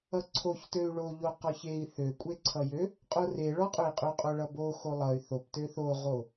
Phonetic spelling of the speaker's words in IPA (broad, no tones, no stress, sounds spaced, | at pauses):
ʌ ǀʰ o ç t ø y̯ ɭ o ʎ o q ɔ ç e i̯ θ ø kʷʼ e ǀʰ ʌ j ø | qʼ o r e ɭ ɔ qʼ ø i̯ qʼ ø qʼ o ɭ ʌ b o x o lˠ ʌ y̯ θ o p t ø θ o ʁ o